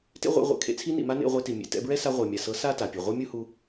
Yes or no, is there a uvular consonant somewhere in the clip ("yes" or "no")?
yes